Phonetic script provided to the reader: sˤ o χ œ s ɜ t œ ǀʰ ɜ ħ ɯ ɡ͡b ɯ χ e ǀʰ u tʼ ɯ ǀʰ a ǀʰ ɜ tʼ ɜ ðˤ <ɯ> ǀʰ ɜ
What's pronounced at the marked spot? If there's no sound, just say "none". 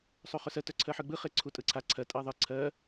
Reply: ɯ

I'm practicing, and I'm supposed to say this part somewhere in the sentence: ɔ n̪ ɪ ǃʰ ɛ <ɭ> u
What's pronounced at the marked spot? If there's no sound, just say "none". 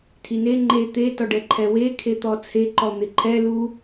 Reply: l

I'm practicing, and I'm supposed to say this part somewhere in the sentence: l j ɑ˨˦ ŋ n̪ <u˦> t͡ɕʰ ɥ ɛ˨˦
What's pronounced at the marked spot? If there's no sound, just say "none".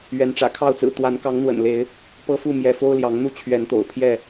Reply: u˦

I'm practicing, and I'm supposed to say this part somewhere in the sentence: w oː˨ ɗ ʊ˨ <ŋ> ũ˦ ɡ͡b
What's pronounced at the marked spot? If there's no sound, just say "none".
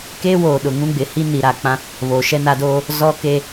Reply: ŋ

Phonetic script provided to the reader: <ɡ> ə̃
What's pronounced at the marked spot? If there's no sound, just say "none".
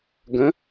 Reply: ɡ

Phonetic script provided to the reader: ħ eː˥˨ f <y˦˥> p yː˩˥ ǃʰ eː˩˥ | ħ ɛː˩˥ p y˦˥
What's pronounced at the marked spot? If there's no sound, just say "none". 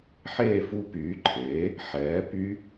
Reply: u˦˥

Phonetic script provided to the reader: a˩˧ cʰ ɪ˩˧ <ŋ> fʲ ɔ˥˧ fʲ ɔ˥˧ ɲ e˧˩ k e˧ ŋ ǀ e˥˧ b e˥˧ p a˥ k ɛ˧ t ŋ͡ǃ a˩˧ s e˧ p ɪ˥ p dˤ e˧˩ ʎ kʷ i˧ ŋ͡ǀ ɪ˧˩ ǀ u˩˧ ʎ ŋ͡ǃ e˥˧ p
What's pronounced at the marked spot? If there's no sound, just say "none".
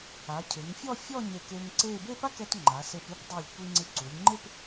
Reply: ŋ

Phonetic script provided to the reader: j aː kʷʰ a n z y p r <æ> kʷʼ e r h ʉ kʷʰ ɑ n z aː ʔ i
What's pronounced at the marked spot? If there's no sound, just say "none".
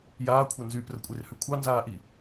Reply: ə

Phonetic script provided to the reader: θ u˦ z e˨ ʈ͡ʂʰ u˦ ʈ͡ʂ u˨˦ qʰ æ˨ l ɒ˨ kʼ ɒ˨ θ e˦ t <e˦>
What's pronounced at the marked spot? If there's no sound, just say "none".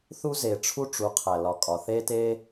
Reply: e˦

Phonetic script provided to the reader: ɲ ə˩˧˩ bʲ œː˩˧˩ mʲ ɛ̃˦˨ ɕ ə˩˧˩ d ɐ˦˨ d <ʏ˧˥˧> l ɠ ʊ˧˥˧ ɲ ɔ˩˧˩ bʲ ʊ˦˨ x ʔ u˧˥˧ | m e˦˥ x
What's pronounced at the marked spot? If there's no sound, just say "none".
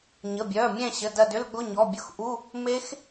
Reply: ʏ˧˥˧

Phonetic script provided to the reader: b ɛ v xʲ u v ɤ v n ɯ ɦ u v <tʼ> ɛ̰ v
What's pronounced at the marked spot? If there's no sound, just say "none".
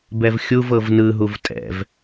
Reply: tʼ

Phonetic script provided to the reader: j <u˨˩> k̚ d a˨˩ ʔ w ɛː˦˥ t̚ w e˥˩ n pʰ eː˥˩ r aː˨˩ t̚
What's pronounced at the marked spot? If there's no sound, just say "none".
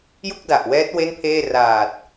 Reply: u˥˩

